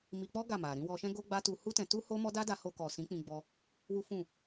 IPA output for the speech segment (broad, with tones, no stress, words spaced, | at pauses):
mi˧k͡pɔ˦ ɡa˦˨ma˨ ɾĩ˧wɔ˧ʃɛ̃˦ ɡo˦ɡ͡ba˦tu˧ hu˦tɛ̃˧ tu˦ ho˦mɔ˦ da˦da˧ho˧kɔ˨ sĩ˨˦k͡pĩ˧ ɡ͡bɔ˧ | wu˦fũ˦˨